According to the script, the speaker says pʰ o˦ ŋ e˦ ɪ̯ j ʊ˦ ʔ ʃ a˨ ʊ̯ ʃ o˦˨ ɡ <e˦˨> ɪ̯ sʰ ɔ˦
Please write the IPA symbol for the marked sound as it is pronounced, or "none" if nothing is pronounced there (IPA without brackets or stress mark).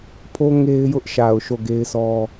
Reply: e˦